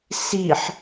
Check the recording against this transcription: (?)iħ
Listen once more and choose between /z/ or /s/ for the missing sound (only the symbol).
s